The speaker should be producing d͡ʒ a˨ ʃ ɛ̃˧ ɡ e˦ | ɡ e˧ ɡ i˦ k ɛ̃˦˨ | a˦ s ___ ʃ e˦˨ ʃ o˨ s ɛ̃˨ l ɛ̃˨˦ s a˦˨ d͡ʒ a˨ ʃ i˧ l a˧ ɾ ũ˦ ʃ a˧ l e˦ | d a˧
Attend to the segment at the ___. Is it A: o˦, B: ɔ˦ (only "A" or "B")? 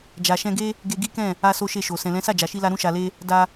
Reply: A